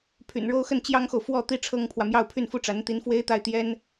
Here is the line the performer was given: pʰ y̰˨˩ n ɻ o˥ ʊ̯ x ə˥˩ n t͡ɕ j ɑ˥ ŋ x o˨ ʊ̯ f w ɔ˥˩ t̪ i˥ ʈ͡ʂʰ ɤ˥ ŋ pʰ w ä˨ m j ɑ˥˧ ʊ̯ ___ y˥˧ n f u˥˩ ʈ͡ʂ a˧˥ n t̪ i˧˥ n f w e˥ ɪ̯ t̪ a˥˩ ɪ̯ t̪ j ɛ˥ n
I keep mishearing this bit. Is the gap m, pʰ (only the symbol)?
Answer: pʰ